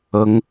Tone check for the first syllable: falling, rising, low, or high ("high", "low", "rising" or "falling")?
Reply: rising